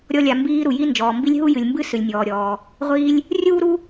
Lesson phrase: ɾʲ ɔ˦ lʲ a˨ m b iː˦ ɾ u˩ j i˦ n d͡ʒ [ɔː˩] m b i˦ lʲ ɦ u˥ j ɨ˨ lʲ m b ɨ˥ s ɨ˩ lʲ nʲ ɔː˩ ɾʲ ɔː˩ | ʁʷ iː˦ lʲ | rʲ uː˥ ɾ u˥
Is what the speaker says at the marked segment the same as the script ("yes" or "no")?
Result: yes